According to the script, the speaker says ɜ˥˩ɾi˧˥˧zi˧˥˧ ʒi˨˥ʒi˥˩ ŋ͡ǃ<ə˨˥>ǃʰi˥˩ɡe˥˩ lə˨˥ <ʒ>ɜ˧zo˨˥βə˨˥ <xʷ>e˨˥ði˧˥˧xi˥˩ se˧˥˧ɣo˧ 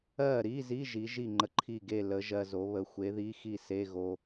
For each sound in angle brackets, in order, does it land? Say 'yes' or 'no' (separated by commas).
yes, yes, yes